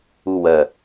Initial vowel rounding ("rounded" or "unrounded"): rounded